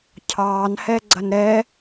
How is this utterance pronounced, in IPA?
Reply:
cʰ ɑː n h ɛ ɡ͡ǀ ɐ n ɾ ɛ

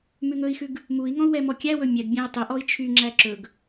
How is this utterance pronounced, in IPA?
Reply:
m ʉ ŋ ɵ i̯ x ʉ ɡ | m u i̯ ŋ ɔ̃ u̯ w ɛ m ɔ kʲ æ w ɵ mʲ ɛ ɡ bʲ æ̃ u̯ tˤ ɵ ʔ ɔ i̯ t͡ʃʰ y ŋ͡ǁ æ ǁ ɵ ɡ

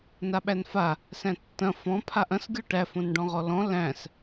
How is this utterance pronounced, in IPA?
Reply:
n a ɓ æ n f a | s æ̃ tː ɐ̃ f ɔ̃ pʰ a ʔ ɐ̃ s ɡʲ ɔ ʈ æ f õ n ɖ ɔ̃ ʁ ɔ l ɔ̃ l æ̃ s

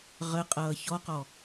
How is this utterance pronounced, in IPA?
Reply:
ʁ ə qʼ ʌː ç ɔ q ɔ

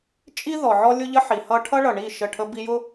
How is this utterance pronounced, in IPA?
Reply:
t͡ʃʼ i˦ ð ɔ˨ ʕ ɔ˦ lʲ ʊ˦ ʎ ə˦ ħ i˨ h ʌ˦ ʈʰ ʌ˦ ɭ ʌ˨ ɳ i˦˨ ʃ ə˦˨ ʈʰ ə˦ b i˦ j ʊ˦

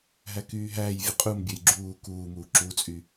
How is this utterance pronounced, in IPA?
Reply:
ɦ æ k yː ɦ æː j vʲ ɯ qʼ u m bʲ ø j ɡ͡ǁ uː k uː m uː ǁ u t͡sʼ y

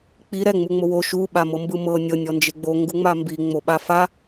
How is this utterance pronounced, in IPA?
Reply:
k͡p i ɾ ɛ ŋ͡m u ŋ͡m o w o ʃ u ɓ a m ɤ m b ɯ m ɤ nʲ ɤ nʲ ɔ n d͡ʒ e ɡ͡b o ŋ ɡ u ŋ͡m a m b i ŋ͡m o ɓ a f a

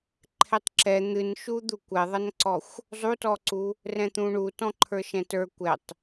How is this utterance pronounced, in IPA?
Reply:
ǃʰ ɛ tˤ ǁ ɛ n̪ ɨ n ʃ u d̪ u kʷ ɛ ðˤ ʌ n ǀ ɔ xʷ | zˤ u t ɔ ǀ u | r ɛ̃ t̪ ũ ɳ u t ɔ̃ ǃʰ ə˞ ʃ ɛ̃ t ə˞ kʷ ɛ tˤ

